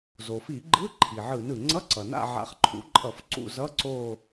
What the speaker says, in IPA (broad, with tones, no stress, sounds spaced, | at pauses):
z o˩ f i˧˩˧ ɡ͡ǃ ɯ˧˥˧ ǃʰ i˩ ʕ ɯ˧˩˧ n ɯ˩ ŋ͡ǀ ʌ˧˥˧ ǀ ʌ˩ n a̰˦˨ ʕ a̰˨˦ χ ǃʰ ṵ˨˦ ǃʼ ʌ˧˩˧ f ǀ ṵ˦˨ z ʌ˧˥˧ ǀ o˦˨